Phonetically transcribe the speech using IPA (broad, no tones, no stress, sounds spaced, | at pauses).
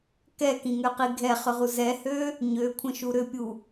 k ɛ k ĩ ŋ ø q i ɡʱ ɛ χ ʏ ʁ u z ɛ h ø | ɲ ø kʷʰ ə̃ ʃ u ɾ ʏ pʲ u